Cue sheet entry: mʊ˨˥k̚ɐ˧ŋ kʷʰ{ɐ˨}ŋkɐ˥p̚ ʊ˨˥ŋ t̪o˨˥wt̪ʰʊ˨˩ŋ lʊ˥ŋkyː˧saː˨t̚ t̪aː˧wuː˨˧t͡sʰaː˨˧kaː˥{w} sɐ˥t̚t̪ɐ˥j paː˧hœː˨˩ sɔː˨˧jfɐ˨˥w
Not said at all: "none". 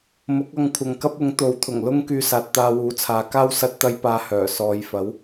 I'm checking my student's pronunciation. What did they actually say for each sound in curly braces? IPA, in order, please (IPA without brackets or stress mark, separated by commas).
ɐ˨, w